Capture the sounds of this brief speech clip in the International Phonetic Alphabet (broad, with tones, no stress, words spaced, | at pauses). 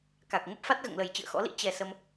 ka˨˩k̚ ŋə˦˥p̚fa˦˥t̚ɣə̰ː˧˨ŋlə˨˩j t͡ɕɨ̰˧˨ə̯xɔ̰˧˥lḭ˧˥ t͡ɕɛ˨˩ sə˧m